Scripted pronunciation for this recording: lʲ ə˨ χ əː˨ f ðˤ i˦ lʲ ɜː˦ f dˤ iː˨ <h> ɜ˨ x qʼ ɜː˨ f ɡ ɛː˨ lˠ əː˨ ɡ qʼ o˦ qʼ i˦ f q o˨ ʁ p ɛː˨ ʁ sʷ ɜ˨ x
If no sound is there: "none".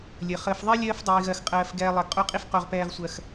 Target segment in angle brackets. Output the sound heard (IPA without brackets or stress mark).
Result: ɣ